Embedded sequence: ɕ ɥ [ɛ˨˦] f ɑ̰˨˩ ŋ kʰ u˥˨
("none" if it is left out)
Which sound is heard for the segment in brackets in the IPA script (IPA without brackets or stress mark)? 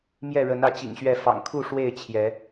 ɛ˥˨